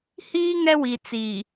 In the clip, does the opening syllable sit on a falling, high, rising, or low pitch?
high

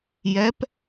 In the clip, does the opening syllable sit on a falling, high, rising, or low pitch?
rising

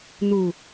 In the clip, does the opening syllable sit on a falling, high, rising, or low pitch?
low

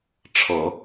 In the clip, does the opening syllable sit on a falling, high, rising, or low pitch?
low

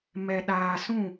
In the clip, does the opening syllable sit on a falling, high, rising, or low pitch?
low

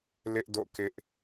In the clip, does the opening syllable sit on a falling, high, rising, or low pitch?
high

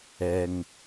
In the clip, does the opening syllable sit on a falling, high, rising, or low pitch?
low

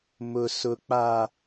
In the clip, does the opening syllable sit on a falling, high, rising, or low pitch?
low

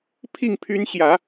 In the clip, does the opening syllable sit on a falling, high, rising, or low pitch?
falling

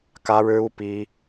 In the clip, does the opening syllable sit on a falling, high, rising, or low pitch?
high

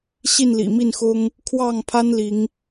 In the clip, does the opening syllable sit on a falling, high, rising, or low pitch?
falling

